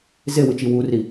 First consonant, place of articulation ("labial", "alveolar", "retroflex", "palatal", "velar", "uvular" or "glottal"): alveolar